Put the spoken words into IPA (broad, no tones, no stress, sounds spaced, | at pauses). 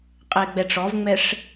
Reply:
qʼ ɛ ɪ̯ ɡ͡b ɛ ʈ͡ʂ ɔ v ŋ͡m ɛ ʂ